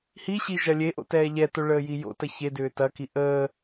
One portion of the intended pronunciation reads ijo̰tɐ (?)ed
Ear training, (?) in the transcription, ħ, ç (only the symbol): ç